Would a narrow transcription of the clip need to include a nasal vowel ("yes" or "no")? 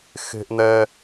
no